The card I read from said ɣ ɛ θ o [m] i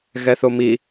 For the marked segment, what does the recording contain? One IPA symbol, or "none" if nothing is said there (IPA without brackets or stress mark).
m